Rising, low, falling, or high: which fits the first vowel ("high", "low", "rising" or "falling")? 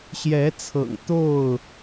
rising